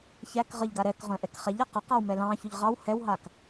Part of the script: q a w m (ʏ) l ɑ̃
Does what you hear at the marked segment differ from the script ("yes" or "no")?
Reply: yes